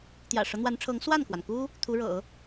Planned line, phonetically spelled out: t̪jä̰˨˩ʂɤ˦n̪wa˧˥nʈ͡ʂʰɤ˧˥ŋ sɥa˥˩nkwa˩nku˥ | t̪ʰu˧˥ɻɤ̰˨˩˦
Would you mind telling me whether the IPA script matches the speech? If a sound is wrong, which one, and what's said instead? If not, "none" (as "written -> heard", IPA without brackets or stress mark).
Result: ɥ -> w